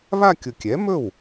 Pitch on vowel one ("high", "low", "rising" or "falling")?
falling